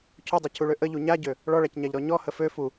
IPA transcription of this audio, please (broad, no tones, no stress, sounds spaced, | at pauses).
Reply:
cʰ u dˤ ø cʰ u ɭ ø ʔ ə ʎ u ɲ a ɟ ø | ɭ ɔ ɭ a c ɲ a ʎ ɾ ɔ ɲ ɔ h ə f ø f u